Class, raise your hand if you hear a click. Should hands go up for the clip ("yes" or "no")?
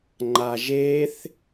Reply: yes